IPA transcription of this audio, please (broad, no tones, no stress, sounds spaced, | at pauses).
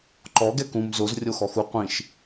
ǃ ɔ ɡ ɛ k ũ m z o z rʲ o x ɔ x u qʷ ĩ ʃ